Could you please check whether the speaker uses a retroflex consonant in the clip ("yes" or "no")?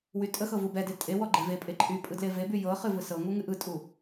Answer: no